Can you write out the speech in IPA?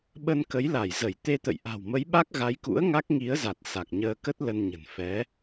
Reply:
ɓə˧nkə˨˦jla˧˩jzə˧˩j t̪e˧t̪ə̰˧˨jʔa̤˨˩w mə˨˦jɓa˦˥k̚ɣa˨˦jkṵ˧˥ə̯ ŋa˦˥k̚ŋi˨˦ə̯za˨˩t̚ sa˨˩k̚ɲəː˧kə˦˥t̚ lə˧nɲə̤˨˩n fɛ˨˦

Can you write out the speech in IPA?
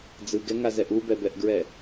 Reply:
d͡zɯɡɛŋazɛʔ ubɛbɛʔɡɹɛ

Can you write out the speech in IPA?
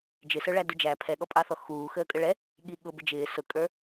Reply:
d͡ʒɪsə˞ɭæ dud͡ʒæ pʰɛɠɔpʼɑθɔ xuː xəːkʼəɭɛ | ɠiɠʊ bɪd͡ʒɪː sʊkʼə˞

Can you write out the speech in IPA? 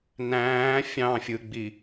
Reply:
næ̃ː fʲɑ̃fʲɯɡ͡bi

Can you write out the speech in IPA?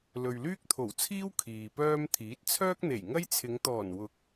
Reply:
lɵ˨ɥlyː˥k̚t̪ʰo˨˩wt͡sʰiː˥w kʰiː˨pœː˥m t̪ʰiː˨˥t̚t͡sʰœː˥k̚ n̪e˨˩jŋɐ˥jt͡sʰɪ˨˧ŋ t̪ɔː˨˩nwʊ˨˥k̚

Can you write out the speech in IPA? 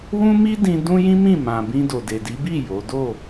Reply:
wũ˦mi˦dĩ˧ dũ˦jĩ˦mĩ˦˨mã˨ bĩ˧ do˨de˨di˨˦bi˦˨ jo˨˦ do˦˨

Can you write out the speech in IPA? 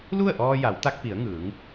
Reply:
lu˥˨ə̯ʔɔː˧ja˩˧wt̪a˧k̚ pi˩˧ə̯ŋɯː˩˧ŋ

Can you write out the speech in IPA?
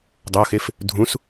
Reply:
dˤoxef | dʱũs

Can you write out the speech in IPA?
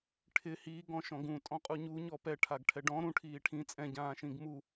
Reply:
ʈʰɪ hiːɡɔ̃ ʃɔ̃ɡũ tʼɔ̃qʼuɲu ɲɔpɛʈʰaɡ ʈʰɛɖɔ̃ ɾũ ʈʰiːʈʰĩ t͡sʼɛ̃ɟãː ʃĩɡmu

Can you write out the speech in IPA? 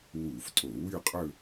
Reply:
wu˧˩˧ftʼo˧˩˧wy˥˧qʼɵ˥˧

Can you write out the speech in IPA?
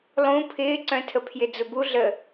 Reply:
lˠũ pʰɪːǀœ̃tʰəpʰjɪ d͡zʊbu ɮə

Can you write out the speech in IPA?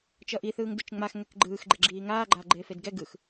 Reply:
t͡ʃʌʔiθɯːŋ dɯt͡ʃŋ͡maxŋɛk ɡ͡ǃɯːx ɡ͡ǃeɡ͡ǁiːŋaː ɡ͡ǃaːɡ͡ǃeːfedɡɛ ɡɯx

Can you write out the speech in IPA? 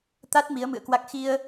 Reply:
t̪a˦˥t̚ mi˨˦ə̯mɨ̰˧˨ə̯kwa˦˥k̚ xi˧ə̯

